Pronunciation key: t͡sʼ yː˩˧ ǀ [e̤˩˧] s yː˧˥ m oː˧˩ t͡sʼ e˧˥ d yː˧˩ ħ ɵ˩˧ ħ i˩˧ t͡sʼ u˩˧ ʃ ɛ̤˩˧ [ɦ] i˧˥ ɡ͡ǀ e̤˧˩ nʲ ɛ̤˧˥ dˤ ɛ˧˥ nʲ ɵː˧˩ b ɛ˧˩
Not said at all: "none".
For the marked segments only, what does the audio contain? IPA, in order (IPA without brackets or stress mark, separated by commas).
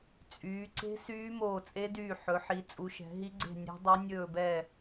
e̤˧˥, ɦ